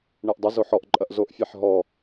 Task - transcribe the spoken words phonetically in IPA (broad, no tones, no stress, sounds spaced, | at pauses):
ɳ e ʔ dˤ ɐ z o ħ ɔ ʔ ǃʼ ɐ ʔ z o ʔ fʲ a ħ ɦ ɔ